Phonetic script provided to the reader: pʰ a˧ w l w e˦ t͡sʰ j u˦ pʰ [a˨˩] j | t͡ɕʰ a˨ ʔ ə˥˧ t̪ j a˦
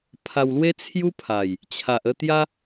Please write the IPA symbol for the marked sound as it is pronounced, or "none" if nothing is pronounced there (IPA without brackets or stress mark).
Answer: a˨˩